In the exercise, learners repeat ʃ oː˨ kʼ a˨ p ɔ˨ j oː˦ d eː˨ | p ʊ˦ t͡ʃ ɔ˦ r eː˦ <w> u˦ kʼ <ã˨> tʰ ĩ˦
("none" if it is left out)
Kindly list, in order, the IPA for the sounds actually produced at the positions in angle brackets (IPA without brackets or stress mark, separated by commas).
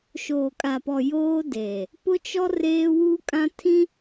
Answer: w, ã˦